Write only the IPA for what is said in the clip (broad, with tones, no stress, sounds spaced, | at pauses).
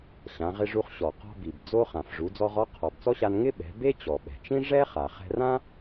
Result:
ɕ ã˩˧ ʁ ɪ˧ ʐ u˧ χ ɕ ɔ˩ q ɔ̤˧ b i˩ b d͡z o˧ χ ã˩ f ʐ u˩˧ d͡z ɔ˧ ʁ ɔ˧˥ qʰ ɔ˩ b t͡s ɔ˥ ɕ a˧ n ŋ ɪ˥ ɓ ɛ̤˩˧ b e˥ t͡ɕ ɔ˩ ɓ ɛ̤˩ t͡ʃ ĩ˥ ʐ ɛ˥ χ a˩ χ ɛ̤˧ r ã˥